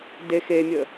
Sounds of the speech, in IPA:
d e x e mʲ ə

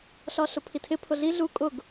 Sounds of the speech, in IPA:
ɬ ɒ ɬ ʊ pʰ i tʰ ɪ pʰ ʊ ɮ i ɮ u kʼ ʊ ɡ

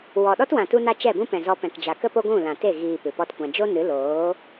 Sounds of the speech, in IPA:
w ɔ˨ ɗ ɔ˦ t w ã˨ t u˧ n a˧ t͡ʃ ɛ˦˨ b ũ˦ p ɛ̃˨ z ɔ˧ p ɛ̃˨ k d͡ʒ a˨ k ə˦ p o˦ ɡʷ ũ˦˨ l ã˨ t e˦˨ ɣ iː˨ p ɨ˨ p ɔ˦ t kʷ ã˧ d͡ʒ o˦ n ɨ˨˦ l oː˨˦

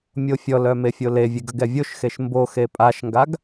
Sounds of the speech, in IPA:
mʲ o fʲ ɔ l œ m e fʲ o l e vʲ e ɡ ə ɡ ɛ vʲ o ʃ x e ʃ m b o x e pʼ a ʃ ŋ ɡ a ɡ

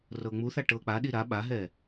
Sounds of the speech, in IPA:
r ɤː ŋ͡m u θ a ʈ ɤː k͡p a ɗ i ɾ a ɓ a ɦ ɛː

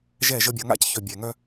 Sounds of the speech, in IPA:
ʒ ɛ˦˨ ʒ ə˦ bʲ ʌ˨˦ ŋ a̰˦ c ç œ˨ bʲ ɛ˨ ŋ œ˦

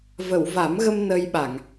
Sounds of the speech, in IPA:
v ə˨˩˨ w v a˨˩˦ m ɣ ə˧ m n ə˧ j ɓ a˨˩˨ ŋ

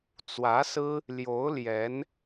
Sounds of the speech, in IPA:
t͡s w ä˧˥ s ɹ̩˥ | l j o˧˥ ʊ̯ l j ɛ˧˥ n

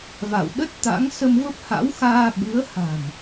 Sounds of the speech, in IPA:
v a̰˧˨ w ɗ ə˦˥ t̚ t̪ a̰˧˥ ŋ s ə˧ m v ə˦˥ p̚ h a̰˧˥ w x aː˧ ɓ ɨ˨˦ ə̯ h a̤˨˩ m

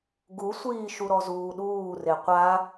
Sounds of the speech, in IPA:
ɡ u sʷ iː ʃ u ɾ ɔ z uː ɗ uː r e qʷ a

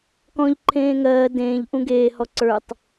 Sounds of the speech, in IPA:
k ɔ̃ ʎ ǃʰ ẽː ŋ ɜː d ẽː ʎ ʔ ũ ɡ eː h ɔ ǀ ə˞ tˤ

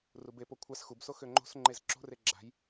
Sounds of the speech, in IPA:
r u b e p o kʷʰ a s x u b s o x ø ŋ͡ǃ o̤ s ŋ͡ǃ e z ǁ o̤ r e ɡ͡ǁ a̤ j

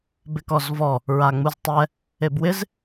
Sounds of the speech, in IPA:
b ɪ k ɔ z v ɔ | ɹ a ŋ͡m u z tˤ ɛ | e b w ɪ z

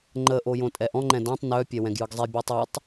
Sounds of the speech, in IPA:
ŋ͡ǃ ə ʔ o j õ tʼ ɛ ʔ ɔ̃ ŋ͡ǃ ɛ̃ d ɔ̃ tˤ n œ pʲ ɛ w ɛ̃ ɡ j ɯ ɡ zˤ e bʲ u tˤ ɛ tˤ

